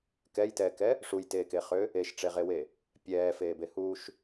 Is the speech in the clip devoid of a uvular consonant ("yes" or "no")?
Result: no